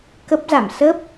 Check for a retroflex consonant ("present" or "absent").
absent